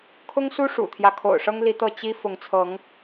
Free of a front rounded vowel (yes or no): yes